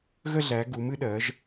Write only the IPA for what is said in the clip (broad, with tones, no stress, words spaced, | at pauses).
ɣə˥˧ɮæ˩˧ ɡu˩˧m ɨ˩˧ɗɜ˩˧ʒ